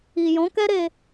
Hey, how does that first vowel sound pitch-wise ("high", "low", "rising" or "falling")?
low